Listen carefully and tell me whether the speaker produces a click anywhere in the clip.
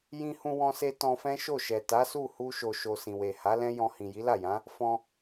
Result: no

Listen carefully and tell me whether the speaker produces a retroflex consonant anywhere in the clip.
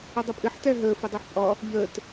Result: no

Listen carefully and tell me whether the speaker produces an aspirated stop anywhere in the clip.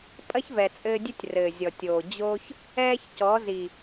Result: no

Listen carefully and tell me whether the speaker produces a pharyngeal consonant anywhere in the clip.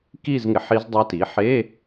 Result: yes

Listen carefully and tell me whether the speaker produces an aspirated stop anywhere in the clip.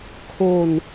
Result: yes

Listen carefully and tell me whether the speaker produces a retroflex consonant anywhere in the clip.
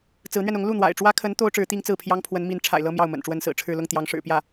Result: yes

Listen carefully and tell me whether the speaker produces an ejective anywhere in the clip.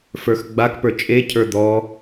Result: yes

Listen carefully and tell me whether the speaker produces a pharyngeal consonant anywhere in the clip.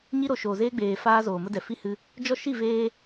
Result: no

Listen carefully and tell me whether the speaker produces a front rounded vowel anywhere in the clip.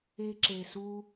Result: no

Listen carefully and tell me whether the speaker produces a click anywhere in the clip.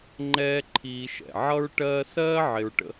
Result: yes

